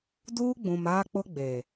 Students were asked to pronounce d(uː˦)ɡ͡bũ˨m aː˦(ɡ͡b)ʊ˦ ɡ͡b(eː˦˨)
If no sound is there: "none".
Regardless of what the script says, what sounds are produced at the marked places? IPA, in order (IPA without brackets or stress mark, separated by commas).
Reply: uː˦, k͡p, eː˨